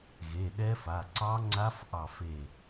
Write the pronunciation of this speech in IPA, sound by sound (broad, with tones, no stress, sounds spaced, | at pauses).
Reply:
ɣ e˩˧˩ ɗ ɛ˦˥ f a˩˧˩ ǀ ɑ˦˥ ŋ͡ǀ a˦˥ f ʔ ɑ˦˨ f e˦˨